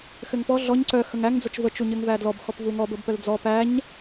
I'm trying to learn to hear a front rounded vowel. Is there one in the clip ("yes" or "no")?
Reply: yes